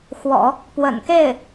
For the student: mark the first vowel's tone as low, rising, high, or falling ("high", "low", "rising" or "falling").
low